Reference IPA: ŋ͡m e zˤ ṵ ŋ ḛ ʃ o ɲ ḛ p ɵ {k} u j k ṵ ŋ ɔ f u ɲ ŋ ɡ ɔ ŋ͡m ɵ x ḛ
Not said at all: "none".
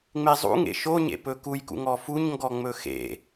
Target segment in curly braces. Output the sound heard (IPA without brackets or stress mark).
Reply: k